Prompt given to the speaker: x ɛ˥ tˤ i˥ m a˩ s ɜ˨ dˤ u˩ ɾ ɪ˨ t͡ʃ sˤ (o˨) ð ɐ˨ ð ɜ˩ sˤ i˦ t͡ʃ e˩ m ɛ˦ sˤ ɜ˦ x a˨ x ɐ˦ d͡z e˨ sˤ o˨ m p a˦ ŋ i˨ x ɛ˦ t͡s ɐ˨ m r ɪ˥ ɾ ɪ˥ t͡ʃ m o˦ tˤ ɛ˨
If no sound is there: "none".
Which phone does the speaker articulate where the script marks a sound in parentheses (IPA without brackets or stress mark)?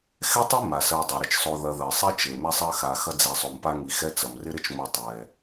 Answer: o˨